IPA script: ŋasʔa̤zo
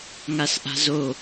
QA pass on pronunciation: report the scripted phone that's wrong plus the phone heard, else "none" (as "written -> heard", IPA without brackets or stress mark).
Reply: none